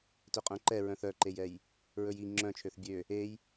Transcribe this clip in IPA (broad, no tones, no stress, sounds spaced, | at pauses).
t ɵ qʼ œ̃ ǃ ɛ ɹ œ̃ θ œ ǃ e j ɛ j | ɹ ɵ j i ŋ͡ǁ œ̃ t͡ʃʰ ø θ bʲ ø | e j